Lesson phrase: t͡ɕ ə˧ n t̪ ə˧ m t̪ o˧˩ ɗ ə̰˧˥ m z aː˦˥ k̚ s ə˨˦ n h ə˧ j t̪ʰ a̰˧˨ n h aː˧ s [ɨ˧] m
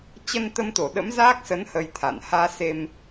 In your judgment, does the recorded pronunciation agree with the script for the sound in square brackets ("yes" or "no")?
no